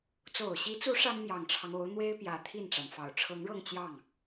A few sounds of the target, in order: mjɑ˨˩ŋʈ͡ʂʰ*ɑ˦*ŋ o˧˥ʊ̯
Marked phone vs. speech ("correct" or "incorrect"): correct